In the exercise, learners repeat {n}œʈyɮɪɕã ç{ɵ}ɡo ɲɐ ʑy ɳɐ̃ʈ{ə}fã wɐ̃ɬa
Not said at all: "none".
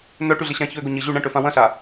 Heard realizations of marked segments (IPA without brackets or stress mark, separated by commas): n, ø, ø